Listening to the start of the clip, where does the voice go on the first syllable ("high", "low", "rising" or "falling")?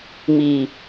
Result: low